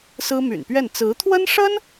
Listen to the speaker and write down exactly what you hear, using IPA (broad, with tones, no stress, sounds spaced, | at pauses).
s ɹ̩˥ m y̰˨˩ n p ɥ ɛ˥˩ n t͡s ɹ̩˧˥ t̪ʰ w ə˥ n ʂ ə˥ n